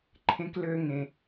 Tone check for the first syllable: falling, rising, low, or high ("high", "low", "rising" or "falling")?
high